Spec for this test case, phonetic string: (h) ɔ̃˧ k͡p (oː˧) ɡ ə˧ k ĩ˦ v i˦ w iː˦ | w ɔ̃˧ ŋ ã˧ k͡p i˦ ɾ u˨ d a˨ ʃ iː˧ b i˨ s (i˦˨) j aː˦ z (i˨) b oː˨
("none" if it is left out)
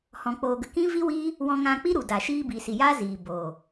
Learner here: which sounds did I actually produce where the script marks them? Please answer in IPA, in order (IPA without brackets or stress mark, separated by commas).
h, oː˧, i˨, iː˨